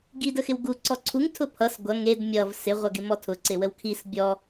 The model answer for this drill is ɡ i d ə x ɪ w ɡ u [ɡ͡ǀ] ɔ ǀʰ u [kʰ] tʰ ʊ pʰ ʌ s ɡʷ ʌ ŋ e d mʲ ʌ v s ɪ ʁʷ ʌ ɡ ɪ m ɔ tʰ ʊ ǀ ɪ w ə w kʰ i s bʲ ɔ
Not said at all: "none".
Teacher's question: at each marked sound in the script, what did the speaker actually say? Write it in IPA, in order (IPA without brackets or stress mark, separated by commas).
ǀ, ŋ